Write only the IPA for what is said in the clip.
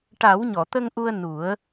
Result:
ʈ a˨˩˦ w ɲ ɔ˨˩˨ t̪ ə˧ ŋ ʔ u˧ ə̯ n u˨˩˦ ə̯

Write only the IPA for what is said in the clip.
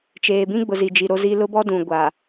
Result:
t͡ʃ eː˨ b ĩ˦ ɡ͡b ʊ˨ z i˨ d͡ʒ i˨ ɾ o˦ z i˦ l ʊ˦ b ɔ˦ d ũ˨ ɡʷ a˨

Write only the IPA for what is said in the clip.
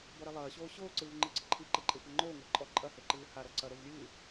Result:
b ɔ ɾ ɛ lˠ ɐː ɕ oː ɕ oː ǀ ɨː v ŋ͡ǃ ɨ ǀ ɘ ǃʰ i ǃ e ǃʼ e xʷ ɛ ŋ͡ǃ oː ŋʷ ɐ ǃʼ ɔ ǃʼ ɐ h e ǃ ɨː h a ɾ ɔ ǀ ɐ ɾ o v lʲ ɨː

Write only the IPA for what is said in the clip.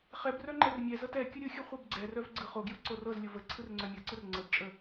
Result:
χ ɛ b r œ ŋ͡ǃ ɛ r mʲ ɛ z ɤ t ɛ kʲ ɯ ɾʲ ɯ xʲ ɯ χʷ ɛ b ɡ͡ǀ ɛ r œ v ɡ͡ǀ ɯ χ o ɡ j ɯ ǀ o r ɤ z lʲ o v ə ǀʰ ɯ r ŋ͡ǀ œ mʲ ɤ ǀ ɯ r ŋ͡ǀ ə b t͡ʃʼ ə

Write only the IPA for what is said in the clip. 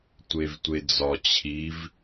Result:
tʷ e v tʷ e d͡z ɒ t͡ɕʰ i v

